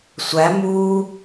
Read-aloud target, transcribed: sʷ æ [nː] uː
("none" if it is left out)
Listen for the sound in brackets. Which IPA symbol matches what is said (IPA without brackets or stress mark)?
m